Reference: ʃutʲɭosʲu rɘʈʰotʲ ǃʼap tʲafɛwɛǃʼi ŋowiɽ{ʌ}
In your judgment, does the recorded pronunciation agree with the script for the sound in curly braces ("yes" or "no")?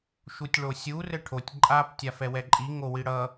yes